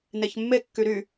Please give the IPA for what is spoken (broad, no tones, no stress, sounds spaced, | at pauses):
n e ç mː e kː y ɾ y